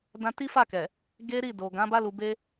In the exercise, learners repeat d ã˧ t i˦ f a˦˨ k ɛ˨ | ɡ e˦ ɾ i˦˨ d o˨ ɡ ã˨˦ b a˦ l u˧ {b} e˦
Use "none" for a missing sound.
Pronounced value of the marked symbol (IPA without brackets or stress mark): b